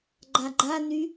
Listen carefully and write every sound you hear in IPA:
ɡ͡ǃ a ɡ͡ǃ a n y

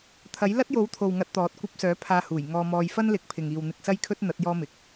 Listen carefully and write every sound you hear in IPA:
t̪ʰ ɐ˨˥ j l ɐ˥ t̚ j o˨˥ w t̪ʰ o˨ w ŋ ɐ˧ t̚ t̪ ɔː˨˥ t̚ kʷ ɐ˧ p̚ s œː˨˥ pʰ aː˧ h uː˨˩ j ŋ ɔː˧ m ɔː˧ j f ɐ˥ n l ɪ˨ k̚ pʰ ɪ˨ ŋ iː˨ w n̪ ɪ˧ k̚ s ɐ˥ j kʰ ɵ˥ t̚ n̪ ɐ˨˥ t̚ j ɔː˥ m ɪ˨˥ k̚

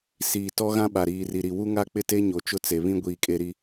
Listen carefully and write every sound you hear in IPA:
s iː˨ t ɔ˦ ɣ ã˦ ɓ a˨ ɾ iː˨ r i˨ ɾ i˨ w u˦ ŋ a˦ k͡p ɪ˦ t e˦ ɲ o˨ t͡ʃ ʊ˦ t͡s e˨ β ĩ˦ ɡʷ iː˨ kʼ e˨ ɾ i˨

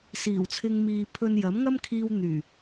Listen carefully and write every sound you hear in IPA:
s iː˨˩ w t͡sʰ ɪ˧ ŋ m iː˨ pʰ ɵ˧ n j ɐ˨˥ m ŋ ɐ˥ m kʰ iː˧ w n̪ yː˨˩

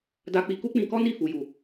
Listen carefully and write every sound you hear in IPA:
d a˧ k͡p i˧ k u˦ k͡p ĩ˧ k ɔ˦ n i˦˨ f u˨ j u˨

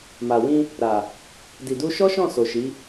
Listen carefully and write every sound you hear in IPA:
m a˨ w ĩ˧ | ɾ a˨ | d i˨ d u˧ ʃ ɔ˦ ʃ ɔ̃˦˨ s o˨ ʃ i˨˦

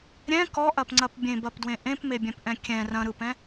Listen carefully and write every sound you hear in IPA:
ɾʲ ɛ̃ k ɔ ʔ ɐ p ŋ͡ǀ ɐ p bʲ ẽ b ɐ p d w ẽ ʔ ẽ p m e bʲ ɛ̃ p ʔ ɛ̃ kʲ ɛ̃ r ɐ̃ ɾ ɯ p ɛ̃

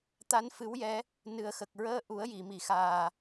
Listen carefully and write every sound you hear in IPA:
t̪ a˧˥ n f ɨ˧˥ w j ɛ˧˥ | n ɨ˨˩ ə̯ x ə˨˩ k̚ ɹ əː˧ ʔ u˨˩˦ ə̯ j i˨˩˨ m i˨˩˨ x aː˨˩

